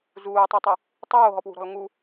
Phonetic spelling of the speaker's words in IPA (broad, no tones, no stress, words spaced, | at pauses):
zuːtˤutˤi | tˤoːɦɔpwṳɾɔ̤l ŋu